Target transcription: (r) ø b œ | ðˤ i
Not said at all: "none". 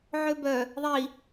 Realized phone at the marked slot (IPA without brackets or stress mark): ʕ